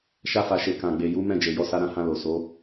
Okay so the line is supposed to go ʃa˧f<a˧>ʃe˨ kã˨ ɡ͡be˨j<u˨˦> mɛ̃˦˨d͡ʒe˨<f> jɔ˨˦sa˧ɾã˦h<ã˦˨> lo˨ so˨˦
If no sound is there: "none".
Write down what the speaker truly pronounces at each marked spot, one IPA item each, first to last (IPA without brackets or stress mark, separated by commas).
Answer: a˨, u˨˦, none, ã˧